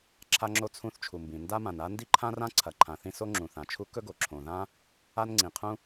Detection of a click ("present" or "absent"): present